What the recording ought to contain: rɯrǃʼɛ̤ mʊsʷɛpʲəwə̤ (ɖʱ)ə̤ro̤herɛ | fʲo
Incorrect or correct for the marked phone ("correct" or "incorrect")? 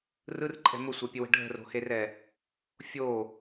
correct